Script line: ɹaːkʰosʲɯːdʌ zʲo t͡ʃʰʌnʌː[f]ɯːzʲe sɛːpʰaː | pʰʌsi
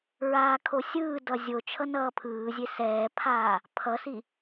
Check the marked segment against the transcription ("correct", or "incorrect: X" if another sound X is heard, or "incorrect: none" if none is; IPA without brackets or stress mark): incorrect: pʰ